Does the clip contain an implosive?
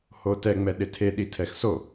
yes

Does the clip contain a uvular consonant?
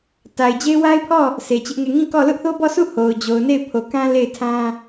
no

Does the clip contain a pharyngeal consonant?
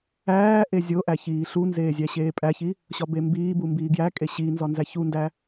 no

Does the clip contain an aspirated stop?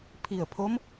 yes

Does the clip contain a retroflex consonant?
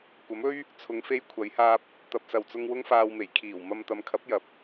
no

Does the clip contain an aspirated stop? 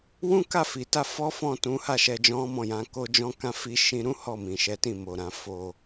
no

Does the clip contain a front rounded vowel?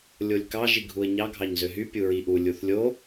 yes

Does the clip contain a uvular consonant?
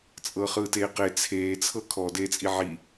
yes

